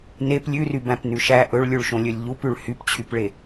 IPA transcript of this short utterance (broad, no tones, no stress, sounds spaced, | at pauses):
n e p lʲ ʉ r y b æ̃ p n ʉ ʃ æ ʔ ɵ ɭ lʲ ʉ ɭ ʃ õ lʲ ɵ lʲ ʎ u p ʉ ɭ h y p t͡ɕʰ y p ɭ e